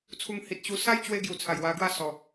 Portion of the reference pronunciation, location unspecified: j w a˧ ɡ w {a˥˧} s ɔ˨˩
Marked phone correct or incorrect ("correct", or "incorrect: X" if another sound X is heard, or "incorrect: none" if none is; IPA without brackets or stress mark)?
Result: correct